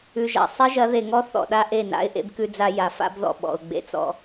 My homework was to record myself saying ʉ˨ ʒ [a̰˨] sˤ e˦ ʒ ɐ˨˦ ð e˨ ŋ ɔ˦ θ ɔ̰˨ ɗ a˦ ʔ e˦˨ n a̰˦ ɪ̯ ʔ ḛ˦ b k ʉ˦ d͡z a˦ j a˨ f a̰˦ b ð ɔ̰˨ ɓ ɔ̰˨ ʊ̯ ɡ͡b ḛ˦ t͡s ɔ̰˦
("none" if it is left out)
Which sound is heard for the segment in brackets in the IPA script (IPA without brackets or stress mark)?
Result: a̰˨